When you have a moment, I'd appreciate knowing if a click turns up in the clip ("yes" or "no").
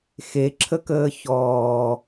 yes